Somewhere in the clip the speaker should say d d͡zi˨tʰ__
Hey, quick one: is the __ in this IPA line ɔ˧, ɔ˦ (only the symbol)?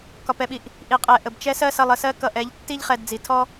ɔ˦